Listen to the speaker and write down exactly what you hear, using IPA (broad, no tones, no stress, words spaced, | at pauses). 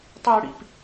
tˤɤɽḭp